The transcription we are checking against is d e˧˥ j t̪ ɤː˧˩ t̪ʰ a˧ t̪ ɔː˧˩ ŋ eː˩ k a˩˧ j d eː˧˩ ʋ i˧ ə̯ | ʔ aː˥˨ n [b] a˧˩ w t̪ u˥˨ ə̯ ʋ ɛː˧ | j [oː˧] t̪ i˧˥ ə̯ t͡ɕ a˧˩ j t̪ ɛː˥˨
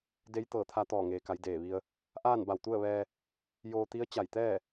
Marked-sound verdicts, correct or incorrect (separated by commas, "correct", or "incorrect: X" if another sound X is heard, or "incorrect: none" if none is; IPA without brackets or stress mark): correct, correct